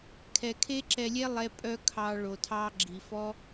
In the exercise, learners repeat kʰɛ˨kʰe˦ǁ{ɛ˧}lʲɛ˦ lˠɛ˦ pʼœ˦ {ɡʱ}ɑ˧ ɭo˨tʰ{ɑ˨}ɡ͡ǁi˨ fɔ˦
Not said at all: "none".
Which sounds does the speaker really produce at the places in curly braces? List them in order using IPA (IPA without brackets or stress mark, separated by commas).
ɛ˧, kʰ, ɑ˦